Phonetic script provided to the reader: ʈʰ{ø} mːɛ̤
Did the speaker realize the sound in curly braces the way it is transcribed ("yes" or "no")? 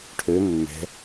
yes